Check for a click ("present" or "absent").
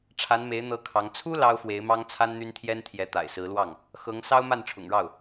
absent